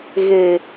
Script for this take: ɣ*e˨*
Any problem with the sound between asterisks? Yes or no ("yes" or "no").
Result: no